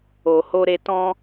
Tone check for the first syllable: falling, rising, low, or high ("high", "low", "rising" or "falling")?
low